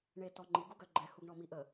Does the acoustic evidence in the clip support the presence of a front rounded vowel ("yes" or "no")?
yes